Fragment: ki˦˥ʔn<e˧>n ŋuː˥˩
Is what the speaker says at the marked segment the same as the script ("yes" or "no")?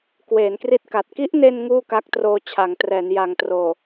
yes